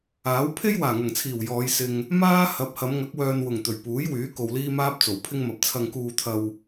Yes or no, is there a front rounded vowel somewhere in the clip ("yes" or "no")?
yes